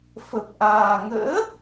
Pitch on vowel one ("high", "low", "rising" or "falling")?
low